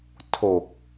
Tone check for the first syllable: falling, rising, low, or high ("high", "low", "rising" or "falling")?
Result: low